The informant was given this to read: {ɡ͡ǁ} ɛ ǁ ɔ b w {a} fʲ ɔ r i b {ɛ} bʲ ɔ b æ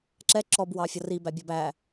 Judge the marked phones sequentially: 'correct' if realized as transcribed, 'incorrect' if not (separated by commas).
incorrect, incorrect, incorrect